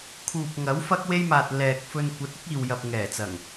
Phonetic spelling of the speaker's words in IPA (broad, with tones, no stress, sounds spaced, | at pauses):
kʰ uː˨ p̚ ŋ ɐ˨˥ w f ɐ˥ k̚ w e˥ j m aː˨ t̚ l ɛː˨ k̚ f ɵ˧ n kʷ ɐ˨˥ t̚ ɪ˥ k̚ iː˨ w j ɐ˨ p̚ ŋ ɛː˨˩ t͡s ɐ˨˩ ŋ